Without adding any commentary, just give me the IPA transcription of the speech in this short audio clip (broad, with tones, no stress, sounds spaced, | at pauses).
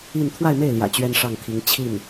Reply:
i˥˧ n t̪ʰ w a˥˧ ɪ̯ m e˥˩ ɪ̯ l j ä̰˨˩ t͡ɕ ɥ ɛ˥ n ʂ ɑ˥˩ ŋ t̪ʰ i˧˥ ŋ t͡ɕʰ i˥˩ n